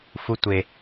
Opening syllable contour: low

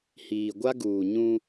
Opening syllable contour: low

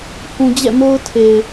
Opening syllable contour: low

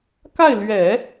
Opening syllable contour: falling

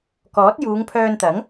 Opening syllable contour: rising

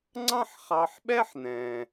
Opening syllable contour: high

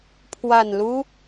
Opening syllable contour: low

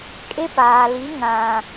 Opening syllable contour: high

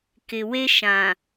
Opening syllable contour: low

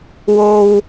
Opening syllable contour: low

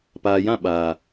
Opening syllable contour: low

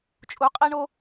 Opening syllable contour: rising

